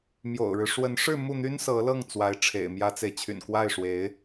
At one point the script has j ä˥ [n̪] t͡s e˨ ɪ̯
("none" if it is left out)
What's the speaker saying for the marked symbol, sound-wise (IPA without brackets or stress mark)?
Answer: none